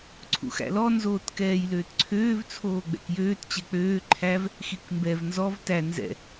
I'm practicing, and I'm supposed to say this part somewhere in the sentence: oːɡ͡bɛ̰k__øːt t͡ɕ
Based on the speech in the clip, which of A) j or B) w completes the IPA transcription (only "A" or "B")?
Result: A